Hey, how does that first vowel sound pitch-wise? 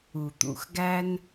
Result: low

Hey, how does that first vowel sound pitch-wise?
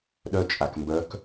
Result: high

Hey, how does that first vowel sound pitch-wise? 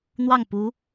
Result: falling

